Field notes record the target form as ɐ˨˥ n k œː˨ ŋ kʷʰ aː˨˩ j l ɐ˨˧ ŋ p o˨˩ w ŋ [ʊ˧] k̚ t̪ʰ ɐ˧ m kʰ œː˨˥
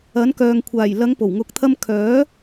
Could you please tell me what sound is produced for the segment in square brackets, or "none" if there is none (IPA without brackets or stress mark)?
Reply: ʊ˨